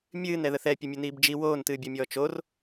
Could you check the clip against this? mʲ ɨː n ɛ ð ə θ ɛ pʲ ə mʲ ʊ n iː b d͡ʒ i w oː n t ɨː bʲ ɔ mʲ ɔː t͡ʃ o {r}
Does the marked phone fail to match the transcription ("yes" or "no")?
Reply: no